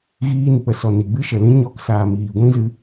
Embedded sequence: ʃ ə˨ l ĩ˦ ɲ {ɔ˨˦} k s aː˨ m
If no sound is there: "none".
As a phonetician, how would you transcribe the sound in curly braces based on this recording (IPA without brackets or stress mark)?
ɔ˧